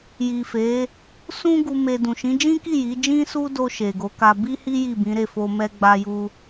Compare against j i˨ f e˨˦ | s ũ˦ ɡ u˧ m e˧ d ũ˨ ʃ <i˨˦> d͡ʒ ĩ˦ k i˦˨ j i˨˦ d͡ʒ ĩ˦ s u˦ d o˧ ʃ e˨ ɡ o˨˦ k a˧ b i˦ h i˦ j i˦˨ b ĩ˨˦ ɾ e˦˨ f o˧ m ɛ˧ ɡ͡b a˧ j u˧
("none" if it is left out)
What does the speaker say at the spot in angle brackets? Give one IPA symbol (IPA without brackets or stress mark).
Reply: ĩ˨˦